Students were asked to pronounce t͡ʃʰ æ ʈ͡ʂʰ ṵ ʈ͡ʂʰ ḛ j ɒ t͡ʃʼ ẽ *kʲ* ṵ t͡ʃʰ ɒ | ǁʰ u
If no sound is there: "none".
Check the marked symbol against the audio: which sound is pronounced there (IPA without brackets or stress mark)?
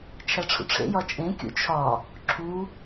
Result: kʲ